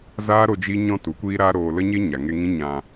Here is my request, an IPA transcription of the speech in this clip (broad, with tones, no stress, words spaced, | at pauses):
zaː˦ɾo˧ d͡ʒi˦ɲɔ̃˦ tu˨˦kʷiː˦ɾaː˦ɾoː˧ lə˦ɲe˦ ɲa˨ŋe˧ŋĩ˦ ɲã˧